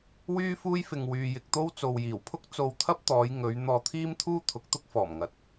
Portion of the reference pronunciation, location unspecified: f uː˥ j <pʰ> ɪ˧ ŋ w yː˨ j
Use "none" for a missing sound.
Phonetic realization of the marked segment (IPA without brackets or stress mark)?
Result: f